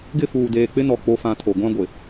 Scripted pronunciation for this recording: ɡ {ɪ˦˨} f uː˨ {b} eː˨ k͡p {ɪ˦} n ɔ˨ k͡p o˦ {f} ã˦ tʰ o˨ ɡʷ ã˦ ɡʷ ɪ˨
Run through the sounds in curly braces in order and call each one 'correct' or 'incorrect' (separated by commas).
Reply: correct, incorrect, correct, correct